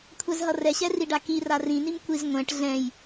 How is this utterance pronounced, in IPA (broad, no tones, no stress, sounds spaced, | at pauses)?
kʷʰ ɛ z ɦ ʌ r ɛ ɕ ɛ r i ɖ a k i r a r ĩ n i m kʷ i z ŋʷ ɛ̃ ʈ ɮ ɛ̃ j